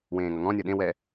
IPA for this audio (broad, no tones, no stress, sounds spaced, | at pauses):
w ẽː ŋ ʌ ŋ ɔ̃ nʲ ʌ ɗ ẽ w ɛ